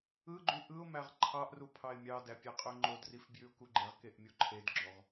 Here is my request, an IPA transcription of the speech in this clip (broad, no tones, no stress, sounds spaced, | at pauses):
ɯ ɡ͡ǃ y ʔ ɯ ʊ̯ m æ ʁ ǃʰ ɑ ʔ r u pʰ ɑ ɪ̯ mʲ ɑ d æ pʲ æ qʼ ø ŋ͡ǃ o d r i f b j y ʊ̯ k u ɡ͡ǃ e ʁ k e ʔ mʲ o ǃʰ e d ɡ͡ǁ o ʁ